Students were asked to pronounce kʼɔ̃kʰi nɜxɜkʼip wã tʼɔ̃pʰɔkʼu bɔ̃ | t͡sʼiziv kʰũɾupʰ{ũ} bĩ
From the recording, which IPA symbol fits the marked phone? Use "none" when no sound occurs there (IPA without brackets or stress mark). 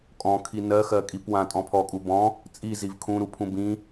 ũ